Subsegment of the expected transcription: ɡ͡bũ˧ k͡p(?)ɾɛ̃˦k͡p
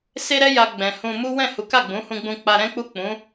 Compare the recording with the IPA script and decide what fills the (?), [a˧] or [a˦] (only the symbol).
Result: a˧